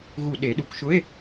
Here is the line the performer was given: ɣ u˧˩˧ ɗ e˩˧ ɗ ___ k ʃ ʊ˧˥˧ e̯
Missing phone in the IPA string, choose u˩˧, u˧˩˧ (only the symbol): u˩˧